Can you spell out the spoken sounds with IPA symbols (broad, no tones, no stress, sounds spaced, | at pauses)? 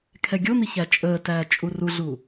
kʰ ɛ ɡʲ o n̪ i ç æ t͡ʃʼ əː t æː t͡ʃʼ u r u ɮ uː